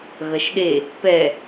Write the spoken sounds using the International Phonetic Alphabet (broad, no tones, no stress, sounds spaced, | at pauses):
ɣ ɐ ʃ ɗ e | p ɛ